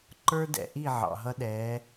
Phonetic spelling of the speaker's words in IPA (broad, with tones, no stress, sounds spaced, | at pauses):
ǃ ə˞˦ d ɛ̰˨ ʔ i˦˨ ʕ ɑ̰˨ ɦ ʌ˦ ɗ ɛː˨˦